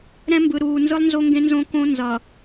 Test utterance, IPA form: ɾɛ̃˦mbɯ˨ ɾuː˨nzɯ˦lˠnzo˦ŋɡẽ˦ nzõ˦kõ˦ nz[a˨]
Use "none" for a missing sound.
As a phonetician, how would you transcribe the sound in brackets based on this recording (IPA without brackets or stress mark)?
ʌ˨